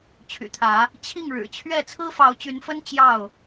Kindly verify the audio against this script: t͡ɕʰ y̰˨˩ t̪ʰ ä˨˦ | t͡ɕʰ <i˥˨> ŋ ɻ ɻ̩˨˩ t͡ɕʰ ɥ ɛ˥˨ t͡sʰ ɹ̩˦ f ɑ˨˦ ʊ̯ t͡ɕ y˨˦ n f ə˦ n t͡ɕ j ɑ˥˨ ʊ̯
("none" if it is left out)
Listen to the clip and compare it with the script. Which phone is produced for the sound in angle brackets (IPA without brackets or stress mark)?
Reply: i˥˨